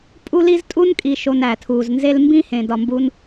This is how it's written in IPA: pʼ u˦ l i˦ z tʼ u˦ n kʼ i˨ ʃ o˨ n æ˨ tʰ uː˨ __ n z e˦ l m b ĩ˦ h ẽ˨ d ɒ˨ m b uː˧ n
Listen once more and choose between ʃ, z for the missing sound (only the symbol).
z